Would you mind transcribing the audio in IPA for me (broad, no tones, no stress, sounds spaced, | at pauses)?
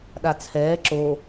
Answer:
ɗ a t͡sʰ ɛː ǁ o